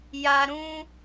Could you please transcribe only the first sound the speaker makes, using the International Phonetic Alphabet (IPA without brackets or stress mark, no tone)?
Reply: j